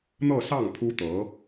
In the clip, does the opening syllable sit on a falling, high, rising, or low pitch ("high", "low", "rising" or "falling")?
falling